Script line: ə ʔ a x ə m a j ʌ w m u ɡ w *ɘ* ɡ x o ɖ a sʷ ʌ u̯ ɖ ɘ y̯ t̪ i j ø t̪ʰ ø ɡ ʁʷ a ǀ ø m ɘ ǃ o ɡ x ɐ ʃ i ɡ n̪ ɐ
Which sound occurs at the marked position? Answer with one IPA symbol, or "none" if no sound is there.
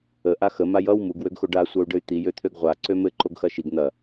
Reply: ø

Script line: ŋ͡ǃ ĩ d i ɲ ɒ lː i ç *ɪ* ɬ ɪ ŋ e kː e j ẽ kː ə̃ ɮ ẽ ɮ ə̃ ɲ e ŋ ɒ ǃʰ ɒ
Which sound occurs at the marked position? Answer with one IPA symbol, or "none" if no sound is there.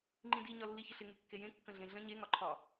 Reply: ə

